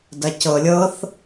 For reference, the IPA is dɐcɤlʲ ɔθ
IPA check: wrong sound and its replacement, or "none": ɔ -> ɤ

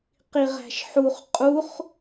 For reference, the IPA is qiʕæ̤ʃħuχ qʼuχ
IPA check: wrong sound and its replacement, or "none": ʕ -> ʁ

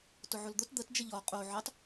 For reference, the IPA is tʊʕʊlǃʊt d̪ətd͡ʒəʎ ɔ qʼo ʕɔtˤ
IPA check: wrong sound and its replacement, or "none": ǃ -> d̪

